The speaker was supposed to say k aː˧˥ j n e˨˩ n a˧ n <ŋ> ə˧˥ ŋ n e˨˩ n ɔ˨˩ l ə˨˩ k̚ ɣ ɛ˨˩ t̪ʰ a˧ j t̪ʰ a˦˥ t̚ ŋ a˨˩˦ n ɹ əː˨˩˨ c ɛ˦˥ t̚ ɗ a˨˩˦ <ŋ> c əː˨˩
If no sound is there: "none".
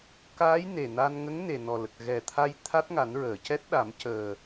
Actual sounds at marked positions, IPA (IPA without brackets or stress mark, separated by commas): ŋ, m